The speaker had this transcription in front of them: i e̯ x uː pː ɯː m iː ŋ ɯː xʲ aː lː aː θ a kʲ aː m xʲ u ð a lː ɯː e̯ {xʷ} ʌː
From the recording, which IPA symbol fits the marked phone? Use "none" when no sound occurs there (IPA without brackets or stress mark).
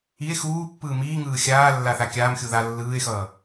x